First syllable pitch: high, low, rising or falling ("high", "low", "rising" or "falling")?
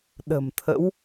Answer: low